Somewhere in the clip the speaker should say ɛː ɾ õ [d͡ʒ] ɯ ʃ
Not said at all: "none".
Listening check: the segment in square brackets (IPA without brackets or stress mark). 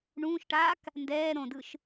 d